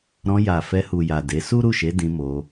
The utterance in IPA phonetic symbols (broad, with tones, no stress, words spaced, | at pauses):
ɾɔ̃˧ ja˨ fɛ˧hu˨ja˨ de˨˦ su˦ɾu˦˨ʃe˨˦ dĩ˧mo˧